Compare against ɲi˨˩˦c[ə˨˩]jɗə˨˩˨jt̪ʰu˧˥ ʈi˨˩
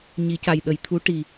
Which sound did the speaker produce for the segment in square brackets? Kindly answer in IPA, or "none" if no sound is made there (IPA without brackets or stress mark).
a˨˩